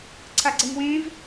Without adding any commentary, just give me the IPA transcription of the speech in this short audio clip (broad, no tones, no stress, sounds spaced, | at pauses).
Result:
ǀʰ a ɡ͡ǀ ɛ ŋ w ẽ v